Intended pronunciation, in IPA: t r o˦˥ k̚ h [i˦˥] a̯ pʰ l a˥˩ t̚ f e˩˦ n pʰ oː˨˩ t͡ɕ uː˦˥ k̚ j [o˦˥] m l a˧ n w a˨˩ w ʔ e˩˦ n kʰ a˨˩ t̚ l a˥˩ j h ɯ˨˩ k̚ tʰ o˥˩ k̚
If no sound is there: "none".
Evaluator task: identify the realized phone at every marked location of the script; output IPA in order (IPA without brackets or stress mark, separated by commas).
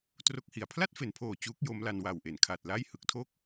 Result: i˨˩, o˦˥